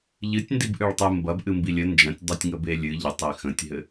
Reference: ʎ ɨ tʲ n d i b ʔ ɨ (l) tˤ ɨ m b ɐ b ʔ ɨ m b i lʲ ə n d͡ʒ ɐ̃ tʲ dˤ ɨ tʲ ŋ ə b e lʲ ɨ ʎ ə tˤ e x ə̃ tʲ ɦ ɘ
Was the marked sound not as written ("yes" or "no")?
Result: yes